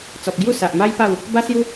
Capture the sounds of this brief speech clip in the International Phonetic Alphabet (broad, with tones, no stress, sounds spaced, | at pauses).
t͡s ɔ˨ p̚ ɡ j u˥˧ s a˨ ʔ m a˦ j p a˥˧ w | b a˦ s j u˦